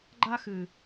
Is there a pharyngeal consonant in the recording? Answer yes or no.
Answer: no